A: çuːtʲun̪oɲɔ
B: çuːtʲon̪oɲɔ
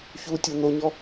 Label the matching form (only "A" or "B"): B